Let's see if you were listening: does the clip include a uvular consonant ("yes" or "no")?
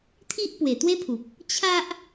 no